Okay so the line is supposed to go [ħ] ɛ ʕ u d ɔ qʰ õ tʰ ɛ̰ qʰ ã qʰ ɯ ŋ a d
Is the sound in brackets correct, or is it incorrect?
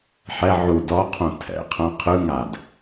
correct